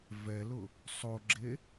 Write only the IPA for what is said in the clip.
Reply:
vɛlʊ | sˤoɡ͡ǁe

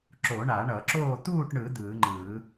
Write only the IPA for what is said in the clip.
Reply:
ǁo˨˩˦ɳa˨˩˦ɳʌ˨˩˦ǁoː˥˨ t̪uː˥˨ʈɳɯ˨˩˦ d̪ɯː˨˩˦ŋ͡ǃɯː˨˩˦

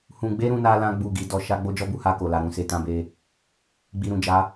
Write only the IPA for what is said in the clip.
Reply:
hũ˨ ɡ͡be˧ ɾũ˦na˦lã˦ ɡ͡bu˦˨ɡi˧dɔ˧ ʃa˦ ɡ͡bo˦d͡ʒɔ˦bu˧ ha˧ko˨la˨ ɾũ˧se˧tã˦be˦ | ɡ͡bi˨ɾũ˨d͡ʒa˨˦

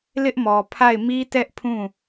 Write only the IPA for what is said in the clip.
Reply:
lɪ˦ʔmɔ˨ pʰa˦˨ɪ̯mi˦ tɛ˦ʔpʰũ˦˨

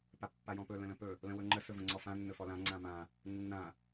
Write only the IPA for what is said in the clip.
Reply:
papːajɔ̃pɵ lə̃lə̃pɵ | lə̃wɵŋ͡ǃə sɵvə̃ŋ͡ǀɔfã nːɵfɔlã ŋ͡ǀãmã | nːã

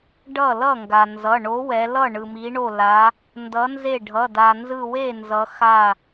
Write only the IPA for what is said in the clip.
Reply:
ɖʌ˥˩lʌ˥˩ŋɡa˩nzʌ˩˧˩ ɳo˨˥wɛ˩˧lʌ˥˩ ɳɯ˩mi˩˧ɳo˧˩ la˩˧ | ndʌ˨˥nze˥˩ ɖʱʌ˩˧˩ da˩nzɯ˧˩we˥˩nzʌ˩˧ xa˧˩

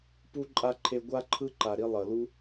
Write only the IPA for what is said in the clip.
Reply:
pu˦ǃʼa˦ ǃʰe˧ɡʷa˦ǃʰɯ˦ ǃa˨ɾi˧ lˠʌ˨lu˧

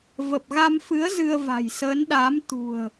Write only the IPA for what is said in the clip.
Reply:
və˨˩p̚ɣa˧mfɨ˨˦ə̯ zɨ˧ə̯va̤˨˩jsəː˨˦nɗaː˨˦m t̪ṳ˨˩ə̯

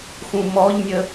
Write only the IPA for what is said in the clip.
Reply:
xũmɔʎnʲə

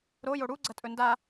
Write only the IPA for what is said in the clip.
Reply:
ɾojo ɽuɡ͡ǀɐtʼɵ nda

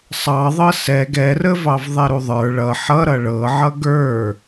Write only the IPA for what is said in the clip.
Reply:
sˤɑðˤɤ sɛ ɡɛrəvɑv ðˤɛɾuðˤə˞ ɭʌ ħʌ ɾʌɭɤ ʕʌɡə˞

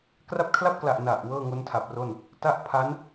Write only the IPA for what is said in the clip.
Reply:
kra˦˥p̚kʰla˥˩p̚kla˨˩ʔ na˨˩ʔ wɤː˥˩ŋo˦˥ntʰa˨˩p̚ro˥˩n | ta˥˩ʔ pʰa˦˥n

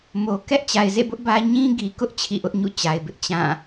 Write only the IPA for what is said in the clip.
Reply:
mo˨ kɛ˦ʔt͡ɕa˨ɪ̯zḛ˦˨bʊ˦ʔ bä˦ ɲĩ˦ɡi˨kʊ˦ʔ t͡ɕʰḭ˦˨ʔʊ˦ʔɲṵ˦˨ t͡ɕa˨ɪ̯bɪ˦ʔ t͡ɕã˦˨

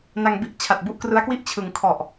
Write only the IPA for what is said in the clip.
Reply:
na˧ŋbi˥˩ʔ t͡ɕʰa˨˩t̚bu˥˩ʔkrɯ˦˥a̯kwi˥˩ʔ t͡ɕʰɯ˩˦ŋ kʰɔ˨˩ʔ

